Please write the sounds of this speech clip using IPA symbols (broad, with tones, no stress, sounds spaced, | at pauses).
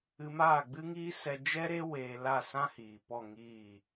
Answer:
ɨ˧ m aː˦˨ ɡ͡b ɨ˦ ŋ iː˦ s ɛ˧ d͡ʒ ɛ˦ ɾ e˦ w eː˧ l a˦˨ s ã˦ h iː˨ p ɔ˦˨ ŋ iː˦˨